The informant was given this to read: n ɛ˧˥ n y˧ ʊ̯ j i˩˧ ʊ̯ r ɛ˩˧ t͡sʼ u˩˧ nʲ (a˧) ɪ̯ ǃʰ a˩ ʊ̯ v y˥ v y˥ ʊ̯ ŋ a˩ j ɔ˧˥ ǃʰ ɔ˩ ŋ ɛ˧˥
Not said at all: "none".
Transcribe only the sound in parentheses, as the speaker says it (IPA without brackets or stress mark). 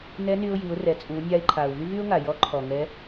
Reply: a˧